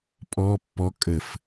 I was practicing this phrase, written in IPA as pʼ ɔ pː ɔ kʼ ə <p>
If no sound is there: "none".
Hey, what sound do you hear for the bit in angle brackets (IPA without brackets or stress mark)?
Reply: f